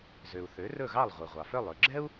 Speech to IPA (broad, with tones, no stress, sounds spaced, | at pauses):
z ø˩ u̯ θ ø˩˥ r ɵ˥˩ ɣ ɑ˥˩ lˠ ʁʷ i˩ ʁʷ ɑ˩ f œ˥˩ lˠ ø˧ ɡ͡ǁ ɛ˥ u̯